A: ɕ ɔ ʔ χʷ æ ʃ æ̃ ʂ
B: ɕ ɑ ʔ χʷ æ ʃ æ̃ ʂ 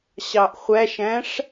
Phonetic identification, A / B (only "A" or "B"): B